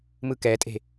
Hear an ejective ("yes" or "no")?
yes